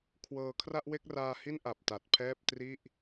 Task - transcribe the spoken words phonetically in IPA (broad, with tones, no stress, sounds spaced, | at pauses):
kʰ w ɤː˧ kʰ r a˥˩ ʔ w e˥˩ k̚ r aː˧ h i˥˩ n ʔ a˨˩ p̚ t a˨˩ t̚ pʰ ɛː˥˩ p̚ t r i˥˩ ʔ